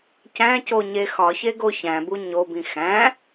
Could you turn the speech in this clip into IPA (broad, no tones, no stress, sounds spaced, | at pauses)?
c æ̃ c o ɲ e x ɒ ç e ɡ o ç æ̃ b u ɲ o b ĩ x æ̃